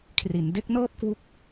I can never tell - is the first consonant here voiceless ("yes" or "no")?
yes